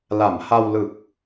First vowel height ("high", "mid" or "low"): low